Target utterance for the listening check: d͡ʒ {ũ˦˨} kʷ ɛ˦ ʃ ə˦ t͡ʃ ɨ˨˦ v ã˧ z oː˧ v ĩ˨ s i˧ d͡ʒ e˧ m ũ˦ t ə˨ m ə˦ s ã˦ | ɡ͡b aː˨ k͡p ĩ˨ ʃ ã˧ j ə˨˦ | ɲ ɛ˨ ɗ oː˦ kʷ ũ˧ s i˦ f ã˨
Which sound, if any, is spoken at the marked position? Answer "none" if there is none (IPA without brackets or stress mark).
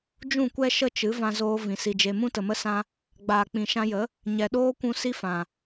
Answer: ũ˦˨